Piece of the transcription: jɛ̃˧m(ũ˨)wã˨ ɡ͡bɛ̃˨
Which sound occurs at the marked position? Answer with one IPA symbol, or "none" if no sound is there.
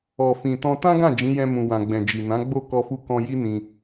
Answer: ũ˨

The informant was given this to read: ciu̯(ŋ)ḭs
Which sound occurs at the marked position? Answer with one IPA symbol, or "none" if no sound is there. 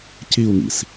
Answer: ŋ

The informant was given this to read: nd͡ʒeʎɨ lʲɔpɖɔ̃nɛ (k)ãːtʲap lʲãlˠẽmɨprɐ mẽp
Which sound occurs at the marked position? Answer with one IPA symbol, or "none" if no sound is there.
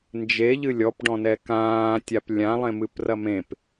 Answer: k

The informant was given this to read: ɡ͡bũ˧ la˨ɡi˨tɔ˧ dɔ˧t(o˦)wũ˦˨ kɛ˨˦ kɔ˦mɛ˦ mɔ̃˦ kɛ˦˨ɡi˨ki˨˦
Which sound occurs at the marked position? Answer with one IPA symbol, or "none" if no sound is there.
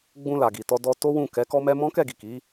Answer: o˦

